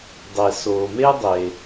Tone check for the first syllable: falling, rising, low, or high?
low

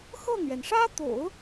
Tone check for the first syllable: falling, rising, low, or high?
falling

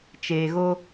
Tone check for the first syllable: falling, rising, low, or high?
low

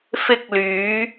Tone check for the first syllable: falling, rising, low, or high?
high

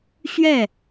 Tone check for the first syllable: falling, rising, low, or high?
falling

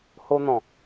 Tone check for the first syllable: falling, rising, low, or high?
high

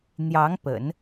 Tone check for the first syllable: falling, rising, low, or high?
rising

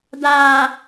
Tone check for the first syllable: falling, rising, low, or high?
low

